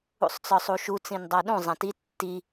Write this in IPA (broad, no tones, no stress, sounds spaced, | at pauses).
ṵ sˤ t͡s ɒ sˤ u ʃ u t͡s ĩ n dˤ a ɗ ũ zˤ ã t i tː i